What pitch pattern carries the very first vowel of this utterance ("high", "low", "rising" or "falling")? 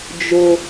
high